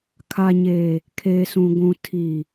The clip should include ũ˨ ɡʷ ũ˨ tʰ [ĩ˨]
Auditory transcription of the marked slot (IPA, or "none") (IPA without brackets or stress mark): i˨